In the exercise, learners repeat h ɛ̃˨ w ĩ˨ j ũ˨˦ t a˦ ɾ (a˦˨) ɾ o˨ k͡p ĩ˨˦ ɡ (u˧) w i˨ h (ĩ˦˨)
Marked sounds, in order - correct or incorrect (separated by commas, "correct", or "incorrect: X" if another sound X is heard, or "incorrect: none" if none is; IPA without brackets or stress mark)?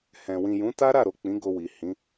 correct, incorrect: o˧, incorrect: ĩ˨˦